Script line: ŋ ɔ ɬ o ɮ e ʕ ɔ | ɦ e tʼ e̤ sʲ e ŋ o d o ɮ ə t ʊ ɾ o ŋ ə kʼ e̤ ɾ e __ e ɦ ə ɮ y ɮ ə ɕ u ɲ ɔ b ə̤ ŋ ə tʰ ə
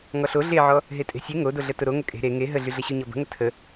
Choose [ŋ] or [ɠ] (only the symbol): ŋ